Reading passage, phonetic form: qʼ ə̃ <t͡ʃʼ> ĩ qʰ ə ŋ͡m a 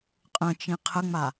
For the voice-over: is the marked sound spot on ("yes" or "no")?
no